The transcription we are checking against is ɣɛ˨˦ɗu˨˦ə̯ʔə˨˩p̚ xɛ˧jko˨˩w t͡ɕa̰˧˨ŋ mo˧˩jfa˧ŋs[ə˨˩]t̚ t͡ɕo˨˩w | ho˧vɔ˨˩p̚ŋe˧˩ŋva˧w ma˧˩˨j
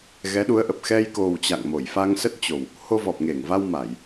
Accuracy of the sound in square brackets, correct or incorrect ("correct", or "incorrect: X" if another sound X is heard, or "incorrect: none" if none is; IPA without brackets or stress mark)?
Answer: incorrect: ə˦˥